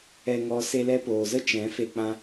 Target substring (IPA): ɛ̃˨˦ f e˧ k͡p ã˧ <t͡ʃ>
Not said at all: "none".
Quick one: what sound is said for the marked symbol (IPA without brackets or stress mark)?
none